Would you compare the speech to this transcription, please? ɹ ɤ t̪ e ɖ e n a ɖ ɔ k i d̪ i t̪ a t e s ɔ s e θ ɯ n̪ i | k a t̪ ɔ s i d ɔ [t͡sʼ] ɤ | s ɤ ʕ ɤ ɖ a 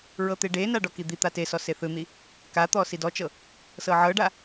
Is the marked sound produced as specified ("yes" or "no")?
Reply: no